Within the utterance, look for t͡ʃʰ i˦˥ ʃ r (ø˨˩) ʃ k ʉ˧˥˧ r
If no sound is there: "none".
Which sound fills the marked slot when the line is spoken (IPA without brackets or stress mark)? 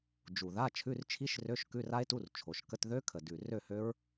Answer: ø˧˥˧